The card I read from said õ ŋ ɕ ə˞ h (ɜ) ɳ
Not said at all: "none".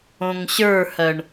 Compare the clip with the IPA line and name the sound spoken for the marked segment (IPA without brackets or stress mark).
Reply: ɜ